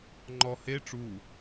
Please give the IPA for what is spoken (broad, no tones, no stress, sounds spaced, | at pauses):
ŋ͡ǃ ɔ h e ʈ͡ʂ u